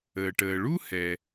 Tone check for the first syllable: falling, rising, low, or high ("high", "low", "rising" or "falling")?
low